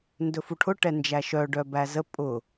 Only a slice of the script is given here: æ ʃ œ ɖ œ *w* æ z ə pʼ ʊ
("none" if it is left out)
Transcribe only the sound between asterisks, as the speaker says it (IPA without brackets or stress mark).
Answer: b